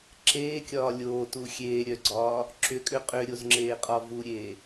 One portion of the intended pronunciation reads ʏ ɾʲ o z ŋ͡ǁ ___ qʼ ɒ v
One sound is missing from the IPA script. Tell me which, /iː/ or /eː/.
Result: eː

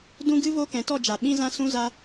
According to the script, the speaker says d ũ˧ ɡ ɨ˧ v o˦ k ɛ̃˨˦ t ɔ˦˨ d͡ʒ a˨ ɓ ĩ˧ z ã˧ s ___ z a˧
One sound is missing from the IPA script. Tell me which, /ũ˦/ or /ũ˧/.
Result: ũ˧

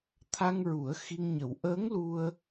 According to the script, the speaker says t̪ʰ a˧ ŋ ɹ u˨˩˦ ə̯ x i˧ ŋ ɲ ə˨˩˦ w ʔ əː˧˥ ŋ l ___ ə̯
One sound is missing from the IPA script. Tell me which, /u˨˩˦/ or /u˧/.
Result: u˧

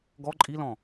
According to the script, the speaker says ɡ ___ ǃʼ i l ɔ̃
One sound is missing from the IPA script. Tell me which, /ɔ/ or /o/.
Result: ɔ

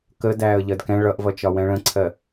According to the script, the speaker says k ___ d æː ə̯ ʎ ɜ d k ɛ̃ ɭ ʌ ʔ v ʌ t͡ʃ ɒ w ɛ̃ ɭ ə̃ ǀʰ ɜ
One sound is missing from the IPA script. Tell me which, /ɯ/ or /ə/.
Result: ə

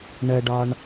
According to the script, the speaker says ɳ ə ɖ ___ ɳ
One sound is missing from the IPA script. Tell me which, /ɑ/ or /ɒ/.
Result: ɒ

